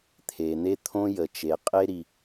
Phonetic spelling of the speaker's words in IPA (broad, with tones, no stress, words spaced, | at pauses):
t̪ʰe˩n̪e˥t̪ʰõ˥ jə˩t͡ʃe˩qʼe˥ ɾi˩